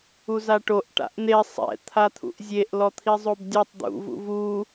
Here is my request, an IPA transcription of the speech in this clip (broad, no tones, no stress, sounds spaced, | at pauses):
u z a ʈ o ʔ ʈ a̰ ʔ n̪ e sˤ ɛ̰ t̪ʰ a t̪ʰ ṵ ʔ zʲ e ʔ l ɔ t̪ʰ i zˤ o b dʲ ɔ tˤ d̪ ṵ v ṵ v u